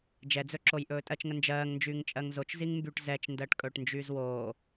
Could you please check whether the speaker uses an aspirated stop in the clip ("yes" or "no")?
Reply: no